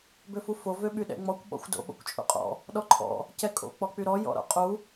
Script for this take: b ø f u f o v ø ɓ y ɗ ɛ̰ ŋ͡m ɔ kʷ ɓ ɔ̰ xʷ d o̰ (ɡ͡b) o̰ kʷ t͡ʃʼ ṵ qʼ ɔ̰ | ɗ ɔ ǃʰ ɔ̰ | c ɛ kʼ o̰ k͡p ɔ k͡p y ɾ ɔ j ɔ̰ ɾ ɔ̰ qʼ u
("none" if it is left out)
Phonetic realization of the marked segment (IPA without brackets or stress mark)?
ɓ